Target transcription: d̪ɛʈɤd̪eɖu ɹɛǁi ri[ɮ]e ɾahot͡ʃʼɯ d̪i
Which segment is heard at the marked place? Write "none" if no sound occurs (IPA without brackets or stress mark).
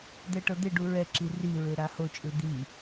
ɹ